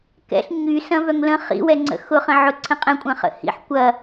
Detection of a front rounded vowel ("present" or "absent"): present